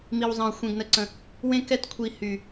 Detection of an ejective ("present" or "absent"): absent